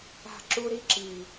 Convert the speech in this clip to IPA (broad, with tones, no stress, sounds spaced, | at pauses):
a̤˦˨ ǁ u˦ ɾ i˦ ǁ i˨